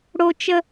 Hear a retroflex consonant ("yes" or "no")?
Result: yes